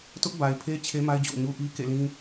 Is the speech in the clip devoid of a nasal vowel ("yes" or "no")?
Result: no